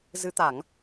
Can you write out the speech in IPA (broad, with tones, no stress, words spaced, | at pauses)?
zɨ˨˦t̪a˧˩˨ŋ